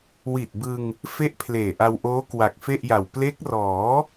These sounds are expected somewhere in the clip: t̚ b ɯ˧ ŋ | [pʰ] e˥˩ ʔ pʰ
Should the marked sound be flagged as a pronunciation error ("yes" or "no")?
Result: yes